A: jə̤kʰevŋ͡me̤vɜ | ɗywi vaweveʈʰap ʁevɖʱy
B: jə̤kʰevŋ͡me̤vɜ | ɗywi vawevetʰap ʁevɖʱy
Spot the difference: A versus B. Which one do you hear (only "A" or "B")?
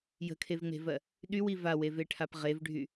A